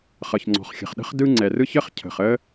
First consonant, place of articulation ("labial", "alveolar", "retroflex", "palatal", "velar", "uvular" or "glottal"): uvular